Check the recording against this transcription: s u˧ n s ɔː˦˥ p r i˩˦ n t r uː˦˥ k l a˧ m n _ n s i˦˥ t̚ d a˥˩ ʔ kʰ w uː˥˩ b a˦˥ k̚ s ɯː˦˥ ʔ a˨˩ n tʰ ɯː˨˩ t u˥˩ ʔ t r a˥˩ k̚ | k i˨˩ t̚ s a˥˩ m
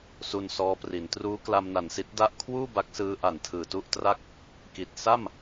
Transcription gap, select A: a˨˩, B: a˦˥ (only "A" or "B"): A